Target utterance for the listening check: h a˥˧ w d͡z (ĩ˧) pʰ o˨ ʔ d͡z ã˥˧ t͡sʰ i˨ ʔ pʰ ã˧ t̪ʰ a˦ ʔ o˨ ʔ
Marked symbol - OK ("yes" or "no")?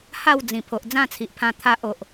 no